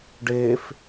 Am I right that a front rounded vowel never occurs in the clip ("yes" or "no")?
yes